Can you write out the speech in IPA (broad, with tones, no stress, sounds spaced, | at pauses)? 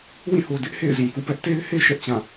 w ĩ˦˨ h o˨ d ɪ˦ ʔ h ḛ˦˨ ɪ̯ z ũ˨ k ṵ˦˨ p ɛ˦ ʔ t e˦ ɪ̯ h e˦ ʃ ɛ˦ ʔ t͡ɕ ã˦˨